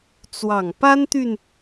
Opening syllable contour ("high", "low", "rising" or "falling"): low